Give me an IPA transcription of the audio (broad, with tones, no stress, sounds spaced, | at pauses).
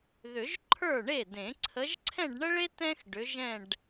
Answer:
ð ʏ˨˩˦ ʒ ǃʰ ə˞˥˩ ɳ e˥˩ d ẽ˨˩˦ ǀʰ ə˨˦ ʒ ǀʰ ɛ̃˥˧ ɖ ɳ ə˥ ɭ e˥ t ɛ̃˥ x ɖ ʏ˨˦ ʒ ɛ̃˥˧ ɖ